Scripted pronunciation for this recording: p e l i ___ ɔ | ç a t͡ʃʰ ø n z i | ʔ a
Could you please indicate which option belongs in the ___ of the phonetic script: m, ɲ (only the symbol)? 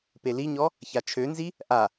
ɲ